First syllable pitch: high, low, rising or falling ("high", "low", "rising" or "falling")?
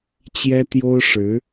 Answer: high